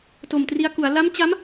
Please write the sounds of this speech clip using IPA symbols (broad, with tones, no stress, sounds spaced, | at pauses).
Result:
t o˨˩ m t r i˧ a̯ k u˩˦ a̯ l a˦˥ m t͡ɕ a˦˥ m